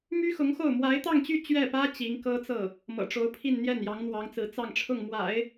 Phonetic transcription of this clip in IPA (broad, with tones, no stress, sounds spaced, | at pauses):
m y˥ x ʊ˧˥ ŋ x o˥˩ ʊ̯ m w a˧˥ ɪ̯ t̪ ɑ˥˧ ŋ t͡ɕ y˥˧ t͡ɕ ɥ ɛ˥˩ p ä˥ t͡ɕ i˧˥ ŋ k ɤ˥ t͡s ɤ˥˩ | m ɤ̰˨˩ ʈ͡ʂ o˧˥ ʊ̯ pʰ i˥˧ n n̪ j ɛ˥˩ n j ɑ˧˥ ŋ n̪ w ɑ˧˥ ŋ t͡s ɹ̩˧˥ t͡s ɑ˥˧ ŋ ʈ͡ʂʰ ʊ˥˩ ŋ m w a̰˨˩˦ ɪ̯